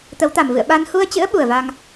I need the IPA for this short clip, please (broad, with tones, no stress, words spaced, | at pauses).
t̪ə˨˦wt̪a˨˩mvɨ̰˧˨ə̯ ɓa˧n hu˧ə̯t͡ɕɨ̰˧˥ə̯ ɓu˨˩ə̯va˧ŋ